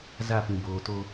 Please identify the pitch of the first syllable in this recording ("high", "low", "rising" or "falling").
falling